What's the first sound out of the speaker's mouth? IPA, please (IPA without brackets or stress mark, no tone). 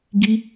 ɡ